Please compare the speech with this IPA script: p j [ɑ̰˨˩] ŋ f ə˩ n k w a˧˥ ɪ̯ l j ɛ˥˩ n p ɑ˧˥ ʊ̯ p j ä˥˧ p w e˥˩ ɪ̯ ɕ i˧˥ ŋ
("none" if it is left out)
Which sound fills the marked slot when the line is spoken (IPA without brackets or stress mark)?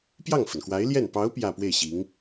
ɑ˥˩